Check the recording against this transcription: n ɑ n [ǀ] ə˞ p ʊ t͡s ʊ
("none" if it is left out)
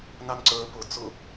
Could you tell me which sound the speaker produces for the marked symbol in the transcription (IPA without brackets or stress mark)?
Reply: ǀ